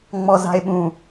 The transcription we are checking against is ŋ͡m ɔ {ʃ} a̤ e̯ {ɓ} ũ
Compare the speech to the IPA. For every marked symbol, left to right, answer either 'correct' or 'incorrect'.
incorrect: z, correct

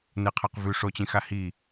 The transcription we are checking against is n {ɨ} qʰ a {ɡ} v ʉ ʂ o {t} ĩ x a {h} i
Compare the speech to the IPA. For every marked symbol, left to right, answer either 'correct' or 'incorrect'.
correct, incorrect: q, incorrect: t͡ɕ, correct

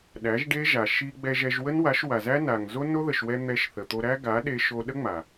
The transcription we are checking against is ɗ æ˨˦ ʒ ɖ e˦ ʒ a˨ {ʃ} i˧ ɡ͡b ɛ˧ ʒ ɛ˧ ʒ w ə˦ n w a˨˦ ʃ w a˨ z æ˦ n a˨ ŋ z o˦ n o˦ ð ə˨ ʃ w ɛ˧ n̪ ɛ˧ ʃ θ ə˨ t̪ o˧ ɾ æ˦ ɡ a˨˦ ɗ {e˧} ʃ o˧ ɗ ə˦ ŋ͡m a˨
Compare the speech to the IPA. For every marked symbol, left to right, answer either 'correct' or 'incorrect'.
correct, correct

